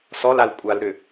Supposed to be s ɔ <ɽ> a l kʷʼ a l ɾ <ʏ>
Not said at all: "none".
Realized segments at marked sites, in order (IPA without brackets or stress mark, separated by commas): l, ʏ